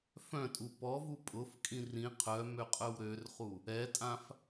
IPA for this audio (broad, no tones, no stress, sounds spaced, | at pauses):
f œ̃ tʼ u p ɔ v u pʼ ʊ f kʼ ĩ r ĩ qʰ œ m ø qʼ œ w ɾ ø r χ u | ɛ tʼ ã f